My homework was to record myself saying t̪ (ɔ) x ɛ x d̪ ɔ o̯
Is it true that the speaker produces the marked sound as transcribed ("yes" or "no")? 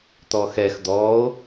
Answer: yes